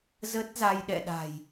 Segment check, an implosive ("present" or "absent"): present